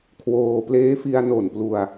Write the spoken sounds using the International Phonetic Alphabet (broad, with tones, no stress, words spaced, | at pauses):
kʰwoː˧pleː˦˥fi˧a̯ no˨˩nplu˧a̯